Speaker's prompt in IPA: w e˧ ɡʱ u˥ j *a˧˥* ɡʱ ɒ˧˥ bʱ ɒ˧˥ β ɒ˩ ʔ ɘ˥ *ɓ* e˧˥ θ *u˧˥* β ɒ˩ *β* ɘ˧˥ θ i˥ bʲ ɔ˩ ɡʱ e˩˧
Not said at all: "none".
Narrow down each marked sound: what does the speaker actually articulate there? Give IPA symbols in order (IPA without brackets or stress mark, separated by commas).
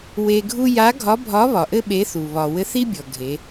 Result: a˧˥, ɓ, u˩, w